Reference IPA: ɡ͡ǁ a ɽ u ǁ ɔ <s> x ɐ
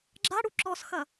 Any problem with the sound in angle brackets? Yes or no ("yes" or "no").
no